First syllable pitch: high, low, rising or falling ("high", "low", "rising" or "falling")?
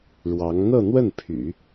rising